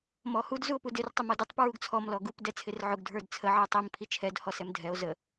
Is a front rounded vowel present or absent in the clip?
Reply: absent